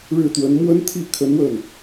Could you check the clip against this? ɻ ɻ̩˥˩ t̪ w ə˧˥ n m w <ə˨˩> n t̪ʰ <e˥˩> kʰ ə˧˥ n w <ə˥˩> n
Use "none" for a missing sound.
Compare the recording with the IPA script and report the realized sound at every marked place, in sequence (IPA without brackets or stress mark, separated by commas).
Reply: ə˥, i˥˩, ə˥˩